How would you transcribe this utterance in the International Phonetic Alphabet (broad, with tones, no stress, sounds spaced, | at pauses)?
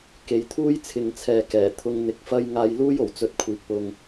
k e˨˧ j t̪ʰ uː˥ j t͡sʰ ɪ˨ ŋ t͡sʰ ɛː˨ k ɛː˨˩ t̪ʰ ʊ˧ ŋ n̪ ɪ˨˥ k̚ f ɐ˥ j ŋ aː˧ j l uː˥ j o˨˩ w t͡s ɵ˧ t̚ kʷʰ iː˨˥ k̚ p ʊ˧ ŋ